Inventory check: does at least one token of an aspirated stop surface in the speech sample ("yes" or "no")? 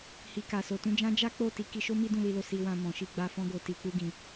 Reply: no